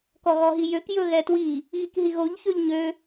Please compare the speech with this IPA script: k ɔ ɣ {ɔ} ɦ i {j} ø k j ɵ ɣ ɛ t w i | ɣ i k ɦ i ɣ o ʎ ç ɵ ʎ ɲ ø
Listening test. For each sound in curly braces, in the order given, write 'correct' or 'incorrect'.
correct, correct

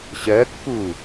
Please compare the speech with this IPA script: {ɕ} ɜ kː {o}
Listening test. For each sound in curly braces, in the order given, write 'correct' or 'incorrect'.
correct, incorrect

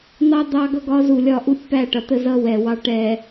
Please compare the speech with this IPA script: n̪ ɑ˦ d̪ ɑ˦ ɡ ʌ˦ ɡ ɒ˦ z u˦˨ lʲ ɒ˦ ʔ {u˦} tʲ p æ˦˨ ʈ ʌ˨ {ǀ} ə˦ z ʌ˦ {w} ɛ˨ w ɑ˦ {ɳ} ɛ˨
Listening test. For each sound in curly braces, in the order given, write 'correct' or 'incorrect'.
correct, incorrect, correct, incorrect

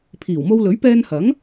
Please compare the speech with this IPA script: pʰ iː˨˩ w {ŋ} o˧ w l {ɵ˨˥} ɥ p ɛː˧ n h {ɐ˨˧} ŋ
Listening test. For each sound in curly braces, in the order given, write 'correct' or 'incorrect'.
incorrect, correct, incorrect

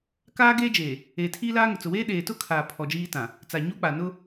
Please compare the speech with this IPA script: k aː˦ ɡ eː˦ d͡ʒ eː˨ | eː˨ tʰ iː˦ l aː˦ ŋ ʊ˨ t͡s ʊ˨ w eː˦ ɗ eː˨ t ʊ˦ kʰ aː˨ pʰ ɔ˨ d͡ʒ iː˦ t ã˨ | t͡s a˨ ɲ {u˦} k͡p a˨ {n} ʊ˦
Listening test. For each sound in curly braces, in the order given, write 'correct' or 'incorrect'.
correct, correct

